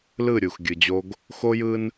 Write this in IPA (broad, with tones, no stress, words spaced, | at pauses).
lɯ˦˨ ɾʲu˨x ɡʲɯ˨d͡ʑo˦ɡ | xo˦jɯ˦n